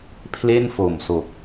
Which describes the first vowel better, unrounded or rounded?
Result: unrounded